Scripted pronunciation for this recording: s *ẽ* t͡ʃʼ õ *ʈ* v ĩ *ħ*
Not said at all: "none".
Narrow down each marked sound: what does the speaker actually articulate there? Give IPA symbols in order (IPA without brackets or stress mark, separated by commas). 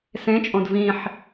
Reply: ẽ, d, ħ